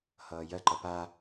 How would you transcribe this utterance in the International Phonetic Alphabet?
hʌːjɜǃʌ pa

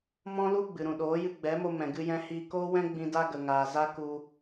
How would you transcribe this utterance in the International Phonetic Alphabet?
mɔ̃˦lu˦ɡ͡bɨ˨ɾũ˨ ɗoː˨˦jɨ˧ɡ͡bɛ˨˦mo˧ mɛ̃˨ ɡɨ˧jɛ̃˧hiː˧koː˦ wɛ̃˦ɡ͡bĩ˧ da˦ɡə˨ŋaː˨za˦ ku˧

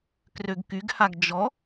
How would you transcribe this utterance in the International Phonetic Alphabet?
krøɡkyɡhaɡ d͡ʒɔ

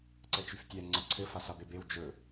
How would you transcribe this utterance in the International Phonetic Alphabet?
ǀɛt͡ʃyftʲɛ ŋ͡ǀaǀʰɘ fasabebew d͡ʒɵ

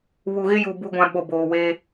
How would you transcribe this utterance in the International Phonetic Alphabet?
βu˨ɣɪ˦ju˨ bu˦ɡʷã˦ ɓo˨boː˨ we˦

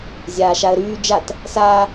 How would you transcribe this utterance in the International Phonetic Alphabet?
zʲaːʃaə̯ɾyː d͡ʒat | saː

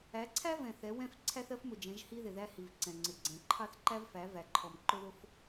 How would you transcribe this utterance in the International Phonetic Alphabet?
æ˨˦ǀʰæ˦vɛ̃˨ θɛ˨˦wɛ̃˦f ǀʰæ˦θɜ˦fmʊ˨d͡ʒɛ̃˨˦ʒ hi˦ðɪ˨ðæ˦hi˨v ǀɛ̃˨ŋ͡ǀɪ˨ɡ͡ǀɛ̃˨˦ ǃʰɑ˦θǃæ˦vfæ˨˦ væ˨ ǃʰɔ˨m ǃʊ˦ðʊ˦f

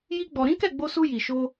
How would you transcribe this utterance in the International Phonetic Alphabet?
ji˦ɡ͡bɔ˧ ɾĩ˦kɛ˦˨ɡ͡bo˧su˧ ji˨ ʃo˧

